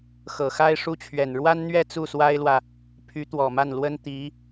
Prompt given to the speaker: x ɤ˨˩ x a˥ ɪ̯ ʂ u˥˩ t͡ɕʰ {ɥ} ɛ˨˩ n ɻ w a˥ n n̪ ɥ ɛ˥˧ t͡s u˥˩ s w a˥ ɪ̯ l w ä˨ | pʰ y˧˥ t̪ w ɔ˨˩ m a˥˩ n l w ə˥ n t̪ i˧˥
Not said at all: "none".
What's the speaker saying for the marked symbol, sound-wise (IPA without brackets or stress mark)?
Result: ɥ